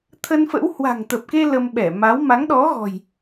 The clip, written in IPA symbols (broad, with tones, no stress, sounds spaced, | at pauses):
t̪ʰ ə˧ n f ə̰˧˥ w h w a̤˨˩ ŋ t̪ ə˨˩ p̚ k e˧ l ə˧ m ɓ ɛ˧˩ m a˨˦ w m a˨˦ ŋ ɗ ɔ˨˦ ɣ ɔ̤˨˩ j